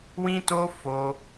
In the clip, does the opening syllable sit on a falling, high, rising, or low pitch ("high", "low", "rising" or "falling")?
high